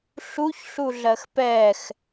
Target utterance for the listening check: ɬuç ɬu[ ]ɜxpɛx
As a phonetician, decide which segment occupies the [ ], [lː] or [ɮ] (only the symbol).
ɮ